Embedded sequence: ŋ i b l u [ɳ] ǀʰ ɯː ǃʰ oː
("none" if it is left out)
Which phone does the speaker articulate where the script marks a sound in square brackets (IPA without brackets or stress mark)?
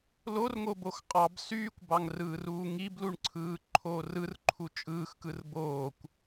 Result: ɳ